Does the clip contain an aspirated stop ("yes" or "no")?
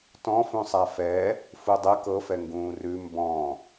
no